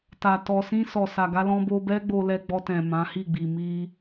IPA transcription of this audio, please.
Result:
ta˨ tɔ˨sĩ˧ sɔ˨ sa˨ɡa˧lɔ̃˧ bo˧bɛ˦ ɡ͡bo˧lɛ˧ɡ͡bɔ˧tɛ̃˨ mã˨˦hi˦˨ɡ͡bi˨ mi˧

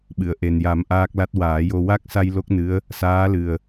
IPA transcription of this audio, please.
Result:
ɓɨ˨˩˨ə̯ʔe˨˩nja˨˩˦m ʔaː˦˥k̚la˦˥t̚ waː˨˩˦jo˧ wa˦˥k̚sa˧j lo˦˥k̚nɨ˧˥ə̯ | saː˧˥lɨ˨˩ə̯

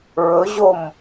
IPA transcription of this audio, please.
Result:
ɹɵʑom

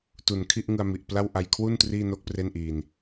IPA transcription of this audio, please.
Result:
tu˨˩nkʰi˥˩ʔŋɯ˧a̯ mi˨˩ʔpla˥˩w ʔa˧jkʰwu˥˩n triː˥˩no˥˩k̚pre˥˩nʔiː˧n

